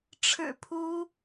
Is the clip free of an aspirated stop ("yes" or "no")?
no